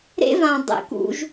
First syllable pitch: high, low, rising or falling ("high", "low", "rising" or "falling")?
high